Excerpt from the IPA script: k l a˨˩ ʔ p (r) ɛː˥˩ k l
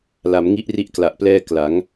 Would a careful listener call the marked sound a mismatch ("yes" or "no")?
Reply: yes